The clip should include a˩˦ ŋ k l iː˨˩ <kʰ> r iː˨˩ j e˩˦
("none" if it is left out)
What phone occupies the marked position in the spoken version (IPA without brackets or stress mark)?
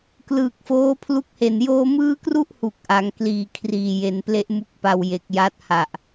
kʰ